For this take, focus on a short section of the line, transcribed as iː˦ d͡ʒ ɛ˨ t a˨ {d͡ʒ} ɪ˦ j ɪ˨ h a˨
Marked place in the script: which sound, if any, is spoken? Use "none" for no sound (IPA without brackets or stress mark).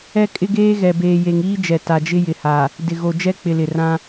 d͡ʒ